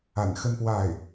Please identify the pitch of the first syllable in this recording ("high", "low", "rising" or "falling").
low